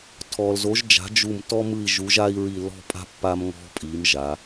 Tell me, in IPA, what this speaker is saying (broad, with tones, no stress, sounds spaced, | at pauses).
tʰ ɔ˨ l z o˨˦ ʒ d͡ʒ a̤˨˦ d͡ʒ u˦˨ m t ɔ˦ m ɯ˦˨ i̯ ʒ u˨˦ ʒ a˦ i̯ ɹ i˦˨ l ɔ̤˦ pʼ a̤˦ pː a˦ m ŋ ɔ̤˦ pʼ i˨˦ m ʒ a˨˦